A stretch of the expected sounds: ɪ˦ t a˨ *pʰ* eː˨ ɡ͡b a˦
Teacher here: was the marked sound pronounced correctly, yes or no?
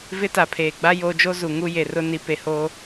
yes